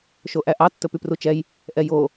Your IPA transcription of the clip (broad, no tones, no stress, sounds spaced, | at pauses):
ʃ o ʔ æ ʔ ɑ tː ɵ p y p r u t͡ʃ ɛ j | ʔ ɛ j o